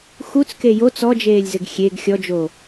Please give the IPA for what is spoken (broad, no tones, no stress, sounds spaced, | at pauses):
x u t͡s k e j o t͡s ɔ d͡ʒ eː lʲ z ɘ ɡ xʲ e ɡ xʲ ɔ d͡ʒ o